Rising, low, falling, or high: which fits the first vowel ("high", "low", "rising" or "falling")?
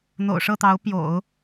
low